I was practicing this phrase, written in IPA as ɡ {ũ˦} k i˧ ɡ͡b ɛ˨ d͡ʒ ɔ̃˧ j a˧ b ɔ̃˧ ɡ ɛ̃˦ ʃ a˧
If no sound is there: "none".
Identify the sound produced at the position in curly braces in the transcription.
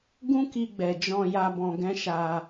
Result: ũ˦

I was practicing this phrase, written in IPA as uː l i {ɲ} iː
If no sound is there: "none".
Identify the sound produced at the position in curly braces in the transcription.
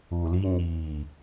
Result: ɲ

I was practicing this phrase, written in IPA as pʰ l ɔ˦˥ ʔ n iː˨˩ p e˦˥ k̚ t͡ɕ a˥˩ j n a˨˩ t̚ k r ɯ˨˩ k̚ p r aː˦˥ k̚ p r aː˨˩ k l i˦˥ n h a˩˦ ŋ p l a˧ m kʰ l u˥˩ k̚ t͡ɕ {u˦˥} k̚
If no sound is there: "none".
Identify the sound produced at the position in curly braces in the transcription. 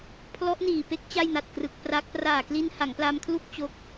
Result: o˦˥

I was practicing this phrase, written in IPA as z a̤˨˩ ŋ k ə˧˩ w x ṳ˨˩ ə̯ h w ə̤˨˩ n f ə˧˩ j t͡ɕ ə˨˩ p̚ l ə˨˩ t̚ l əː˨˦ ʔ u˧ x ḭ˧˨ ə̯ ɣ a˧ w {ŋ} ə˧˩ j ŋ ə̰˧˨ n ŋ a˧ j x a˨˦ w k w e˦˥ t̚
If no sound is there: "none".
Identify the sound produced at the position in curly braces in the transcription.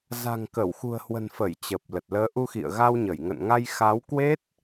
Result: ɲ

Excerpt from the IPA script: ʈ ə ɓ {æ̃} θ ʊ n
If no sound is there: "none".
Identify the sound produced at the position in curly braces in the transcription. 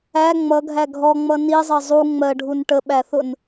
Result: æ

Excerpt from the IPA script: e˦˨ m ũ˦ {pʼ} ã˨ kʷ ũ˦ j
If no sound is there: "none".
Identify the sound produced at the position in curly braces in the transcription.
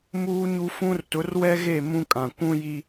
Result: kʼ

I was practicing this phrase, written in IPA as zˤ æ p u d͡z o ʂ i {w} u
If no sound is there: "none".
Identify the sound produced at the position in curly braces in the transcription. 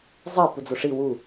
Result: w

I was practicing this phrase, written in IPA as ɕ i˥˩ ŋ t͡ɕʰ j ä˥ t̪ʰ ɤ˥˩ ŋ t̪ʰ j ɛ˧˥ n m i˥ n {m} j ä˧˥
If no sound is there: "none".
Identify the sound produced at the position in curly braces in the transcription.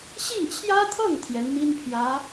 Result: pʰ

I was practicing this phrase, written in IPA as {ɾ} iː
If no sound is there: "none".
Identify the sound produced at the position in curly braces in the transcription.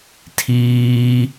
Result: tʰ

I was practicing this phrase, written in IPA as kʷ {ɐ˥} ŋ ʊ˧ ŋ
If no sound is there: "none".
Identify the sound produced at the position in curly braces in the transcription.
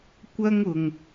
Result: ɐ˥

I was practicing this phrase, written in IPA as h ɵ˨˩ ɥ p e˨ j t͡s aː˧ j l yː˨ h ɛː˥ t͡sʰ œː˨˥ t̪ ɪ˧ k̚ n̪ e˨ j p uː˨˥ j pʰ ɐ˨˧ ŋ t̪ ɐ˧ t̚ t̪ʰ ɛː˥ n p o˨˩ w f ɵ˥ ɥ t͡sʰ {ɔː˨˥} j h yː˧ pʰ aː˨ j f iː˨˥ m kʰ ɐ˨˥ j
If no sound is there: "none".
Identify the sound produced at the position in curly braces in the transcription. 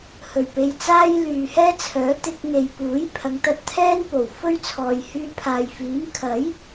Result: ɔː˨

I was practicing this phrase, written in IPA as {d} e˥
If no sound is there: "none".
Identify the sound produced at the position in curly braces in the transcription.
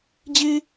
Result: d͡ʑ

